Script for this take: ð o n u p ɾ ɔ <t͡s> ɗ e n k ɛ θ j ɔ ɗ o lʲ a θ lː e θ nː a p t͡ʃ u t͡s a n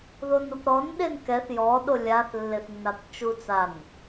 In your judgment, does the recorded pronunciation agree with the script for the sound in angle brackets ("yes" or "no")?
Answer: no